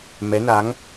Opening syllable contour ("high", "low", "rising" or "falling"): rising